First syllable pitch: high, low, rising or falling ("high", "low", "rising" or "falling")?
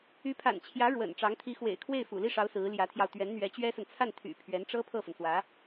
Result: rising